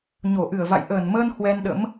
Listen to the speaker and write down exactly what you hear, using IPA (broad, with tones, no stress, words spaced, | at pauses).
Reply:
ɲo˧˩ʔɨ˧˩ə̯va̰˧˨j ʔəː˧˩nməː˧n hwɛ˧nɗə̰˧˥m